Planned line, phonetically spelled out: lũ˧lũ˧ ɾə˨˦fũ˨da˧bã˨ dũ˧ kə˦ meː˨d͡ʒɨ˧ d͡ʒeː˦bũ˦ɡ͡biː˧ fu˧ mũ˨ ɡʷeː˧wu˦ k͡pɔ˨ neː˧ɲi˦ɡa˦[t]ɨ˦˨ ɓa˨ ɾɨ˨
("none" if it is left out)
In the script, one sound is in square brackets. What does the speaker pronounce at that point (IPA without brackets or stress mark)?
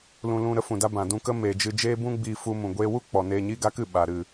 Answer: k